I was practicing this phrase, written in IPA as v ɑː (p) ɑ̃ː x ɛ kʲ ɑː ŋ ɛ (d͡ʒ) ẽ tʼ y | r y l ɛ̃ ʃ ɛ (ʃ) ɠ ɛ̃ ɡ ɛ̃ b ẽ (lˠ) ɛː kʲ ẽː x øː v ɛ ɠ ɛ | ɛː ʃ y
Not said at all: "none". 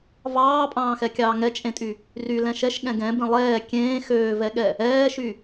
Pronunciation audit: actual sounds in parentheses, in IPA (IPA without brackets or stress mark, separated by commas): pʼ, t͡ʃʼ, ʃ, lˠ